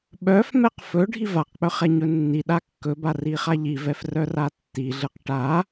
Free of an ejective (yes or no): yes